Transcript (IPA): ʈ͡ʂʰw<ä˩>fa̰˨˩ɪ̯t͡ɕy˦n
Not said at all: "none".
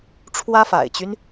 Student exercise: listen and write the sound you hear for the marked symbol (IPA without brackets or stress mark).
ä˥